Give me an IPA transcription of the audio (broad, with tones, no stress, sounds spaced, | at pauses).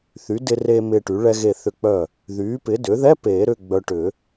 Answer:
θ y˩˥ d ɪ˧ r eː˧ m ɪː˧ ʈ y˩˥ ɭ ɛ˧ ɣ e˧˩ θ ʏ˧˩ k͡p œ˧˩ | ð yː˩˥ p ɪ˩˥ d ʏ˩˥ ð ɛ˧˥˧ p eː˨˩˦ ɾ ʏ˧˥˧ ɡ͡b œ˧ ʈ ʏ˨˩˦